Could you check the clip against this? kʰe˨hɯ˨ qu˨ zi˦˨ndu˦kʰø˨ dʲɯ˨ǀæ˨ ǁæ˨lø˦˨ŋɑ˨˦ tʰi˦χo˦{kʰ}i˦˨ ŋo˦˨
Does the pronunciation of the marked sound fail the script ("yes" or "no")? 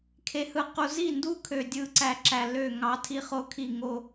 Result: no